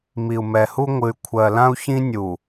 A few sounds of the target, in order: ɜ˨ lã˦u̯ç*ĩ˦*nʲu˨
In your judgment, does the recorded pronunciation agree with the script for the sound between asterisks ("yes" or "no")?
yes